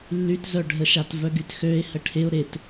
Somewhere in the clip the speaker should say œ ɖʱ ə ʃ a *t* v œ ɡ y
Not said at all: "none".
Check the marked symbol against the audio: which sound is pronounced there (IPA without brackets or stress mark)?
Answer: t